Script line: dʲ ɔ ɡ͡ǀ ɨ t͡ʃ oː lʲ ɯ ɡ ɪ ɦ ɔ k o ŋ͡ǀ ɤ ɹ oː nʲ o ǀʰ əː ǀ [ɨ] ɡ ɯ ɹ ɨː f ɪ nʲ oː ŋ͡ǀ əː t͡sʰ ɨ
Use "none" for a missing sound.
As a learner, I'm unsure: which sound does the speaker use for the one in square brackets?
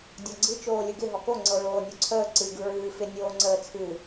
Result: ɨ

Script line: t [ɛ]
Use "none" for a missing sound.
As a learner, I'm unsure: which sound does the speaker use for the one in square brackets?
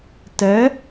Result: ɛ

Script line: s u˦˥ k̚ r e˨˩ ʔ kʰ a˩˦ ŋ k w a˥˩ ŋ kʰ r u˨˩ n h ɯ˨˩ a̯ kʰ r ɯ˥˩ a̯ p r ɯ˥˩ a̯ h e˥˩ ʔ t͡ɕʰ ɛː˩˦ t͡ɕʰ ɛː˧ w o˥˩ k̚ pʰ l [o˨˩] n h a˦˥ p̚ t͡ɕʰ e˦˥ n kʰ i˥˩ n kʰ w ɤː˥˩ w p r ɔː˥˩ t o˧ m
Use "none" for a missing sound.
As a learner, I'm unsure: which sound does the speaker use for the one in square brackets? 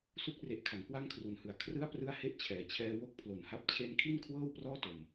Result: o˨˩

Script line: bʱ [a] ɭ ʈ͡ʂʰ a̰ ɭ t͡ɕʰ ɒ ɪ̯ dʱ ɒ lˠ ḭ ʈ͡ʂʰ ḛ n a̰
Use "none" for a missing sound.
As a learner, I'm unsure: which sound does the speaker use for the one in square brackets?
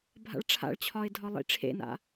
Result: a̰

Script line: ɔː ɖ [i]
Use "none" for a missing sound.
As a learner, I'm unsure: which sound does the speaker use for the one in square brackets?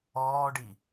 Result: i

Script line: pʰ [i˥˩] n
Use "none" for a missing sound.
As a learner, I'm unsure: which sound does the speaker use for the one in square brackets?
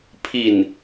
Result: i˥˩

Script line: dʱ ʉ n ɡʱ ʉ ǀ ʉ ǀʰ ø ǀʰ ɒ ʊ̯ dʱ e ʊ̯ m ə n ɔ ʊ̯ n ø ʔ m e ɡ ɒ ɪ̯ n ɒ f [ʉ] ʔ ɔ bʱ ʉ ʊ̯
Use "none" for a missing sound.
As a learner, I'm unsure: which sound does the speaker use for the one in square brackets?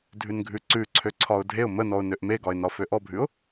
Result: ø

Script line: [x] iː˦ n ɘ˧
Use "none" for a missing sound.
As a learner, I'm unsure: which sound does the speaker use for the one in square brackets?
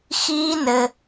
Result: x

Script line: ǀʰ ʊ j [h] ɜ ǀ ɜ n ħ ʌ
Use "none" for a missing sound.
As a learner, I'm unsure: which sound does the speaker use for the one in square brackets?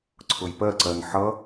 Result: p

